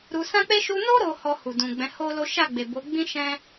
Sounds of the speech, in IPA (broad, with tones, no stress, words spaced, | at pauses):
ɾu˧ sã˦k͡pe˦ ʃu˧no˦ ɾo˧ hɔ˧hu˨dũ˨ ɡ͡bɛ̃˨˦ho˦lo˦ ʃa˦˨ɡ͡be˨bo˨˦ ɡ͡bĩ˦ʃɛ̃˦